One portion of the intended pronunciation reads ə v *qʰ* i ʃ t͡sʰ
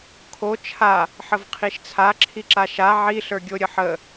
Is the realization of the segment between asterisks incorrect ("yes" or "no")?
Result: no